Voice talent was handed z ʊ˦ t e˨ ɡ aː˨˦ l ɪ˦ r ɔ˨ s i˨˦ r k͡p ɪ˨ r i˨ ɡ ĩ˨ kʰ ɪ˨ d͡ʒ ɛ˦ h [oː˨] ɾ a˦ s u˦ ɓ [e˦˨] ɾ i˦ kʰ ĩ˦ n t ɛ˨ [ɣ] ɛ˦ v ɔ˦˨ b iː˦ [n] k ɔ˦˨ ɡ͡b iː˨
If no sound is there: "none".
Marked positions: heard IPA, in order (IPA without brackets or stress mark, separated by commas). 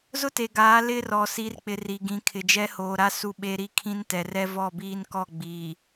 oː˨, e˦, r, n